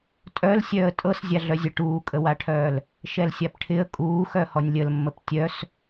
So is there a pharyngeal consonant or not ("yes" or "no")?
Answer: no